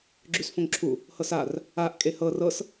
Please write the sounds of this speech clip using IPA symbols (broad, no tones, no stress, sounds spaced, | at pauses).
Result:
ɡ͡ǁ ʉ s f õ ŋ ǁʰ u | h ɤ s a r | a ʔ kʼ e h ɤ r ɤ s